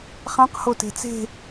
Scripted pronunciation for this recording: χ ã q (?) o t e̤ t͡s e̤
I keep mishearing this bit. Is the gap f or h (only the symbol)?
h